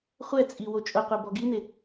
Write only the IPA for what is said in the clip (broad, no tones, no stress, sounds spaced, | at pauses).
χʷ ɛ t͡sʼ i w o t͡ʃʼ ʊ qʷ e b ɔ ɡ i n ɪ